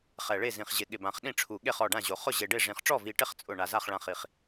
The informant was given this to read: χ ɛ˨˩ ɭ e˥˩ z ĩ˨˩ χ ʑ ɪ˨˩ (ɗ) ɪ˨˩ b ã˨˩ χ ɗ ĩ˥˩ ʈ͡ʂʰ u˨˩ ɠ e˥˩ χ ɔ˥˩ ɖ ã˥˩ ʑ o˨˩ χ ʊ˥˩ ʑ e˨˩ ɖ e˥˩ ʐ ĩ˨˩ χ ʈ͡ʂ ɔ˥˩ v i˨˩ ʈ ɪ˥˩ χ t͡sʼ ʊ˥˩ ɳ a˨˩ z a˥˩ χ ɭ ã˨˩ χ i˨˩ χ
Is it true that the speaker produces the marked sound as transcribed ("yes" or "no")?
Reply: no